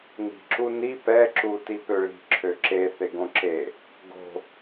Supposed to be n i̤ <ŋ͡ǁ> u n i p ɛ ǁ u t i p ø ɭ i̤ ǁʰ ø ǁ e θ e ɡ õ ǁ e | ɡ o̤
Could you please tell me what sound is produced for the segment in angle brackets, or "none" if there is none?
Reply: ǁ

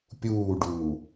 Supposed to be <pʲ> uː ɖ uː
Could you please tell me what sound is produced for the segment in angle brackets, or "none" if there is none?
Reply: pʲ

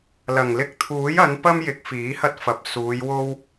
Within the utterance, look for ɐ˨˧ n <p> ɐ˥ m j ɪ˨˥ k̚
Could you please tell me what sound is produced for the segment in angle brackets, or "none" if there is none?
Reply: p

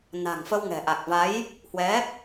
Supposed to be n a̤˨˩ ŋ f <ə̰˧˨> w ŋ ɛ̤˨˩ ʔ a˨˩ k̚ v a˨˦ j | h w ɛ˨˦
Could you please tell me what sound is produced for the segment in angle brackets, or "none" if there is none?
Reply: ə˧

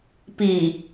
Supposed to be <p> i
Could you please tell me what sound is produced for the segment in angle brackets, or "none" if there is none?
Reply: p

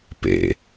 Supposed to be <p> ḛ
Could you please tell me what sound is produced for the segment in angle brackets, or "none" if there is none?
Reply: p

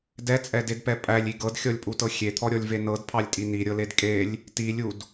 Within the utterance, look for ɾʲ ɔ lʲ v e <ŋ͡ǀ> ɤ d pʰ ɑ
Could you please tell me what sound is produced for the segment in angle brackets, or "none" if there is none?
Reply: n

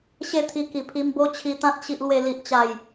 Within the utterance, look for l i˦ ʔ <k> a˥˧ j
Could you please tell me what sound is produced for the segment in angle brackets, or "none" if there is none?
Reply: t͡ɕ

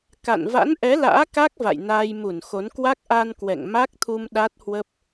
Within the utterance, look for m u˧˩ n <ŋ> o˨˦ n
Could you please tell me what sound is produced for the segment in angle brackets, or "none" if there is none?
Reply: x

